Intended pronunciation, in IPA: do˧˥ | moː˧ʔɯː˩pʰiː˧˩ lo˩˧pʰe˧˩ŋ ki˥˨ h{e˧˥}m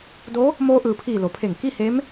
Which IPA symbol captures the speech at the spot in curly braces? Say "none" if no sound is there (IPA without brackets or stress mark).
e˧˥